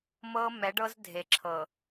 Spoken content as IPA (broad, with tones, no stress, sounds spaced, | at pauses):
m ɤ˦ m ɛ˨˦ ɖ ɤ˦ z dʱ e˨ ǁʰ ɤ˨